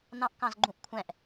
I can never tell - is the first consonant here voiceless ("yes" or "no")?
no